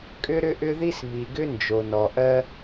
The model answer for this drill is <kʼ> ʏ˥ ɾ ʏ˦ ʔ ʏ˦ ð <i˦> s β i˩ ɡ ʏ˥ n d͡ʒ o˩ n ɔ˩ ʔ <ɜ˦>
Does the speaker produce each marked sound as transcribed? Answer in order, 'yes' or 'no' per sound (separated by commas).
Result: yes, no, yes